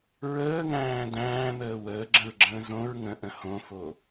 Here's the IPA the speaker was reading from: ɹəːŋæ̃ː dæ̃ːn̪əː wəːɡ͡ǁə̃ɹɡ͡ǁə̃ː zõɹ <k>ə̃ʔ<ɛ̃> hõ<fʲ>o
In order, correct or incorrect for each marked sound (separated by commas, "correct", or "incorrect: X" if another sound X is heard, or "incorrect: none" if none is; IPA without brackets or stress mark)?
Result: incorrect: ŋ, incorrect: ə̃, incorrect: f